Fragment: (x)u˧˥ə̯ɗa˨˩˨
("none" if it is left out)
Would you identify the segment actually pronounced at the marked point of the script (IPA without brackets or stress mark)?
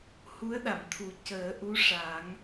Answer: h